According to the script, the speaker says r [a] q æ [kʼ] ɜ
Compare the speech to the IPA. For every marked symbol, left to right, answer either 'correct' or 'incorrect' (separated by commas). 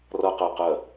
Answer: incorrect, incorrect